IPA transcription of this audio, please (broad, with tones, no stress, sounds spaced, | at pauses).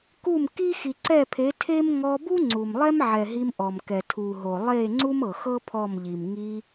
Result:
k u˦˨ m k i˦ x i˨ ǀ ɛ˦˨ pʰ e˨˦ tʰ e˦ m ŋ ɔ˧ b u˦ ŋ͡ǀ u˨ m lˠ ɛ˦ m ʕ ɛ˨ ɦ i˧ m ʔ ɔ˨ m k ɛ˨ tʰ u˨ ɦ o˨ lˠ e˦˨ ŋ͡ǀ u˦ m ɤ˨ x ɤ˦ pʰ ɔ˦˨ m ʎ i˨ m ŋ i˧